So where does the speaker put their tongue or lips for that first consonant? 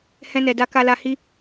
throat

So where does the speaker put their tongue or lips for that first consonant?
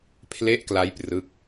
lips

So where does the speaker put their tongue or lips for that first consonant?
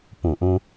lips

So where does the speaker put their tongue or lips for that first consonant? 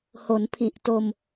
throat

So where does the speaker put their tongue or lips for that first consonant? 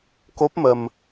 velum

